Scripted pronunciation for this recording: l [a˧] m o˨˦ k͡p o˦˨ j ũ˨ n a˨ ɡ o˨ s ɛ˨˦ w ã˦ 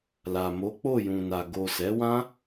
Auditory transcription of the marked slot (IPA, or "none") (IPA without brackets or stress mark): a˨